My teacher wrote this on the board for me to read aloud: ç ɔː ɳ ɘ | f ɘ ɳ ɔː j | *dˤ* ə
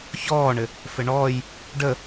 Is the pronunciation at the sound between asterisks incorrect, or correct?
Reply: incorrect